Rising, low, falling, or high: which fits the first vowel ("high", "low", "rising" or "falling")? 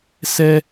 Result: high